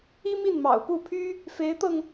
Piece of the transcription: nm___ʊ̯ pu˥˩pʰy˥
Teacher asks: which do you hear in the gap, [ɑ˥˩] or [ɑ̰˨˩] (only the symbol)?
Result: ɑ̰˨˩